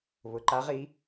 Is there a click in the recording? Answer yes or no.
yes